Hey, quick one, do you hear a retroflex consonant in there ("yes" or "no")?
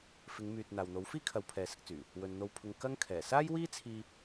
no